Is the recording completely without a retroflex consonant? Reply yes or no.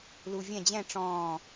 no